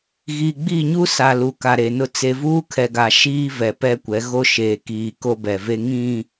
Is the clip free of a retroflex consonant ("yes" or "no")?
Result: yes